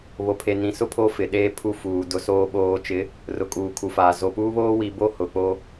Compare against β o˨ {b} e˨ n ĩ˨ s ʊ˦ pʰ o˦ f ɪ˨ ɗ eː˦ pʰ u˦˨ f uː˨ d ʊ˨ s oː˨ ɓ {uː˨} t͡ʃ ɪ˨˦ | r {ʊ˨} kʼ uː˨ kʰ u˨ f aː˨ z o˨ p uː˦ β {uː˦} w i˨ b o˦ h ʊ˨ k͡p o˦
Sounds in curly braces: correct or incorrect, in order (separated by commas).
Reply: incorrect, incorrect, correct, incorrect